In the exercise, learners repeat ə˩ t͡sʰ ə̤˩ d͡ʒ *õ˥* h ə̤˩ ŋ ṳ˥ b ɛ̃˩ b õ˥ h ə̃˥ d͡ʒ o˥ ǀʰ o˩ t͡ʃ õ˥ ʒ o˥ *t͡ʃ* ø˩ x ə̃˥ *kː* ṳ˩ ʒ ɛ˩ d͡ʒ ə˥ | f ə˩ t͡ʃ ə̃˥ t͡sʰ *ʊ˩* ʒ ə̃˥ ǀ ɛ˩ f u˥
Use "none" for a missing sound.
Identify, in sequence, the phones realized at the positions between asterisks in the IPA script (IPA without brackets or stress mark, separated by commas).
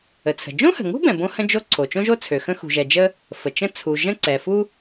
õ˥, t͡sʰ, x, u˩